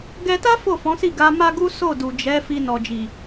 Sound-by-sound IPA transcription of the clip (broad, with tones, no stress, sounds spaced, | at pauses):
ɡ ɛ˧ t a˦ f o˦˨ f ɔ̃˨˦ s i˦˨ ɡ a˧ m a˦ ɡ u˦ s o˦˨ d u˨ d͡ʒ ɛ˨˦ f i˧ n ɔ˨ d͡ʒ i˨